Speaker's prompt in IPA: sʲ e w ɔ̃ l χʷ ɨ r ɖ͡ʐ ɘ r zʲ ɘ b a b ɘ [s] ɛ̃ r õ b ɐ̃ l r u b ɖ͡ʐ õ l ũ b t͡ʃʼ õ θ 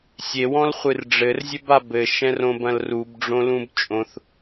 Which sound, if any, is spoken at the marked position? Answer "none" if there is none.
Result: ʃ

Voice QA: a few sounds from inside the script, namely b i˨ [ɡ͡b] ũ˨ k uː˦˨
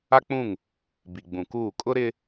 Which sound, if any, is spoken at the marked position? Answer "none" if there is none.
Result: ɡ͡b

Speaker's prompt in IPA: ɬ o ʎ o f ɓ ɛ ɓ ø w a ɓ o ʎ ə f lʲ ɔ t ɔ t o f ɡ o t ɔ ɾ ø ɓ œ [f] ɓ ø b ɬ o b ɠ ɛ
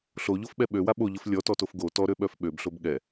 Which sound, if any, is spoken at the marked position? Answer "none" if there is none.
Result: f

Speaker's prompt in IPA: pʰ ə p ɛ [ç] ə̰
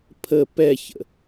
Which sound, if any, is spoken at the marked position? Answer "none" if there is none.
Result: ç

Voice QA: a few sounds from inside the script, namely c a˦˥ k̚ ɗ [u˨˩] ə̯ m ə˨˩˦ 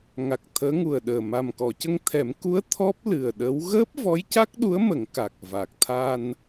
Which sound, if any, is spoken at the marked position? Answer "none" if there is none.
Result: u˧˥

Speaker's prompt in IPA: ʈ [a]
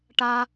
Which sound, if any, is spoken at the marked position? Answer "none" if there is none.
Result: a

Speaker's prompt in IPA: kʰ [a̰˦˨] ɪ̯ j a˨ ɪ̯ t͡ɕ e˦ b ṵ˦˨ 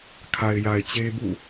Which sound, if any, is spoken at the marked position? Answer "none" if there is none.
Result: a˨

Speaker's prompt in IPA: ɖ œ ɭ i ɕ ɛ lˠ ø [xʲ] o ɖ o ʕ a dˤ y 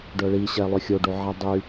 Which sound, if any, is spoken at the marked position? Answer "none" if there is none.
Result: xʲ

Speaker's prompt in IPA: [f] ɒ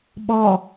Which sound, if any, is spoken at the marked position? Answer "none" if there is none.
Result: ɓ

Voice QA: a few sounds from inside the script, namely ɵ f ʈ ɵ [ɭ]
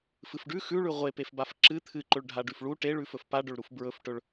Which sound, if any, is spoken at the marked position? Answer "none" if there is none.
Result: ɭ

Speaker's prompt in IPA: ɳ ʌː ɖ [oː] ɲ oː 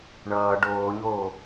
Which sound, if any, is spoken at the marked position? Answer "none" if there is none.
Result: oː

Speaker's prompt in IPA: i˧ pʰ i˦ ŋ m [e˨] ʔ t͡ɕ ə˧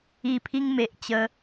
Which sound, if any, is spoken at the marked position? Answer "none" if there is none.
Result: e˨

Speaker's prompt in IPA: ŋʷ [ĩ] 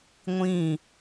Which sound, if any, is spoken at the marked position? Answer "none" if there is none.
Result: ĩ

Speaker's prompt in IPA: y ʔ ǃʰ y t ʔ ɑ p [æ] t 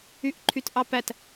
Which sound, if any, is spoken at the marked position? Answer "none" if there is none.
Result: æ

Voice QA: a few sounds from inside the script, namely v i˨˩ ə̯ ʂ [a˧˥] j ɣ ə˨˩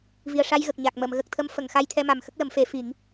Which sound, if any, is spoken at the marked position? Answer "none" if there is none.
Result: a˧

